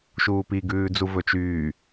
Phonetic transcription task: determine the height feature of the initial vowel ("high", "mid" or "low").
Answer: high